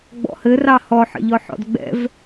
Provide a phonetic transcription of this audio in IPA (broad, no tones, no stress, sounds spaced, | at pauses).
ɡ͡b ɔ̰ h ɘ r ɑ h ɔ ħ ə̰ ʎ ɔ ħ ɔ̰ d ɡ͡b ɛ̰ v